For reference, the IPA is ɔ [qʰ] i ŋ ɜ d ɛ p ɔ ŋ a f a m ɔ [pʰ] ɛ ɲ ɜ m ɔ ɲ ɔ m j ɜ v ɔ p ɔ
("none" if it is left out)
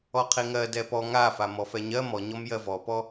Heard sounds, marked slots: qʰ, f

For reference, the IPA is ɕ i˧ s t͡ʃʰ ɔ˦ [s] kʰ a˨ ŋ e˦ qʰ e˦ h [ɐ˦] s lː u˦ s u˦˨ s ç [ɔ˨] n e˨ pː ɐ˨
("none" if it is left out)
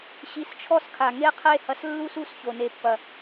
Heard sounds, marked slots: s, ɐ˧, o˨

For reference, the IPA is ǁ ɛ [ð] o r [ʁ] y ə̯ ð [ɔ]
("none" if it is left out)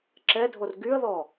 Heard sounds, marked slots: dʱ, ɡ, ɔ

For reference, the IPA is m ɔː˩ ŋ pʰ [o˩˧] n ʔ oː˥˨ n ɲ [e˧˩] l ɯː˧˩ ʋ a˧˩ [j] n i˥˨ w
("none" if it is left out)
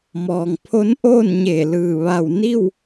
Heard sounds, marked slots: o˧˥, e˧˩, w

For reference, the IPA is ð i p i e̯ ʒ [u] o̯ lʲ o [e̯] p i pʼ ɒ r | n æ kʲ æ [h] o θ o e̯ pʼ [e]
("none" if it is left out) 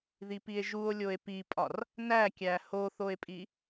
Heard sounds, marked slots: u, e̯, h, i

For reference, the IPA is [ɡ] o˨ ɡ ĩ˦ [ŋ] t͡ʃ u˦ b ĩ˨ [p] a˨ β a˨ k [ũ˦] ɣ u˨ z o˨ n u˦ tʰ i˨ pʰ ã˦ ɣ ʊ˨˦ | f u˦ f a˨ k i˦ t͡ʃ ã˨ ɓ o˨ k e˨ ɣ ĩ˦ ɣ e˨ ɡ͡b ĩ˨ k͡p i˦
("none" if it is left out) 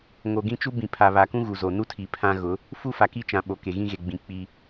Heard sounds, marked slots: ŋ, none, pʰ, ũ˦

